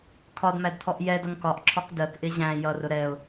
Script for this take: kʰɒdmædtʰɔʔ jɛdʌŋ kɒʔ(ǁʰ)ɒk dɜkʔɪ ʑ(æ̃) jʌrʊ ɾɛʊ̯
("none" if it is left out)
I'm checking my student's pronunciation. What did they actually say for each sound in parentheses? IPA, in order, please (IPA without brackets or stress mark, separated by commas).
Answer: ǁʰ, æ̃